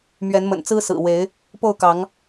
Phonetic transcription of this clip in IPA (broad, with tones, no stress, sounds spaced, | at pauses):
m ɥ ɛ˨˦ n m ə̰˨˩ n t͡s ɹ̩˦ s ɹ̩˨˩ w e˨˦ ɪ̯ | p o˥˨ ʊ̯ k ɑ˨˦ ŋ